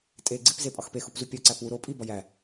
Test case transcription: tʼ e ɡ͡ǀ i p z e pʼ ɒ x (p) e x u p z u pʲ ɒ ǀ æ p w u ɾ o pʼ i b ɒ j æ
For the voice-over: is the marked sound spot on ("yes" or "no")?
yes